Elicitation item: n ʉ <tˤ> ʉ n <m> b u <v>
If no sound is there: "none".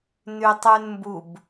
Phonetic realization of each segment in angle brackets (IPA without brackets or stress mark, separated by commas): tˤ, m, b